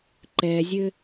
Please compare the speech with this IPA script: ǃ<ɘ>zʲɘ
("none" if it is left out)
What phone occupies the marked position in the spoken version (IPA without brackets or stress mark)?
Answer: ɛ